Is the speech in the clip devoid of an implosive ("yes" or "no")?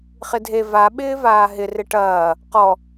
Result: no